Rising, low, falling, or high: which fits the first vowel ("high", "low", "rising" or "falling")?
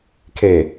low